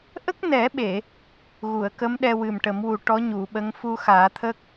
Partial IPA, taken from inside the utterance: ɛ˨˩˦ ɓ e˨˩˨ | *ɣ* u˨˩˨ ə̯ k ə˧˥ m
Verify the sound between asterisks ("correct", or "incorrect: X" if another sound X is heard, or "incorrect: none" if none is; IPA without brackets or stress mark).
correct